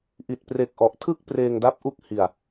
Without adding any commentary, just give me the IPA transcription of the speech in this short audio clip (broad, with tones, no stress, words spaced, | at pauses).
ʔi˨˩t̚pre˨˩k̚ ʔɔ˨˩ʔ tʰɯ˥˩k̚ preː˧ŋda˦˥p̚ʔu˦˥k̚ hi˨˩a̯